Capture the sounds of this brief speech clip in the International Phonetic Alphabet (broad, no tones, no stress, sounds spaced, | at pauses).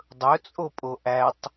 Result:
dˤ ɵ t͡sʼ o pʼ o ʔ æ tˤ